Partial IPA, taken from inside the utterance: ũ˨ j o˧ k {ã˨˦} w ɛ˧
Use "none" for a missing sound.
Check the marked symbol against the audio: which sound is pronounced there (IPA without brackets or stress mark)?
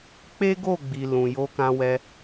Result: ã˧